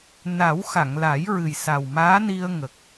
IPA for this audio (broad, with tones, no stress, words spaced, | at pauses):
na˨˩˦wxa˨˩˨ŋla˨˩˦jɹɨ˨˩j sa˨˩wmaː˧˥ni˧ə̯ ŋə˨˩k̚